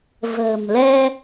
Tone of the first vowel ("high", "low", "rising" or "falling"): low